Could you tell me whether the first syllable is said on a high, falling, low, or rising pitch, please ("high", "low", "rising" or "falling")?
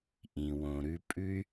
low